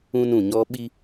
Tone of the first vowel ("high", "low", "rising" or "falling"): high